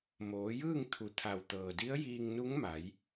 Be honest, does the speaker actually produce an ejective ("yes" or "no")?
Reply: no